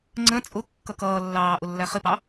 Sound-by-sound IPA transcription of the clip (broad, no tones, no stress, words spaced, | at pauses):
ŋ͡ǀə̃ t͡sʼʊkːʌk ʌːlːɑː ʔʊlːæχɪpɑ